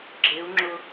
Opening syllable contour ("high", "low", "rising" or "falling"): rising